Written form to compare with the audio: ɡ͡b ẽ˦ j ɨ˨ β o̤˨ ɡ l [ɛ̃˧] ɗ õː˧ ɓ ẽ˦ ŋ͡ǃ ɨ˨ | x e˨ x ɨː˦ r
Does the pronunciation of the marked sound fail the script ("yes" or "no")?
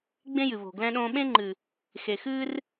no